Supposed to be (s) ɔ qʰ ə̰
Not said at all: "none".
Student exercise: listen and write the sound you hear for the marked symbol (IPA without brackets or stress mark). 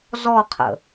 z